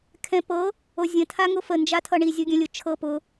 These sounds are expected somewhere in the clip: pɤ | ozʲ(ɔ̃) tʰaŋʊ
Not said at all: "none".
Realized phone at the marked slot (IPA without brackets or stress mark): ə̃